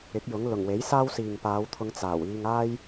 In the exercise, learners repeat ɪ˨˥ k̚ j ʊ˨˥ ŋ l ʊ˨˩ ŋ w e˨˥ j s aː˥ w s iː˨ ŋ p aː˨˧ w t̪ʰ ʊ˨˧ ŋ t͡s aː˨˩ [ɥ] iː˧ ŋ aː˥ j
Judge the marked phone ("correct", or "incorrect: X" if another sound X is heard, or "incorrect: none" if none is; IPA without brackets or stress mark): incorrect: w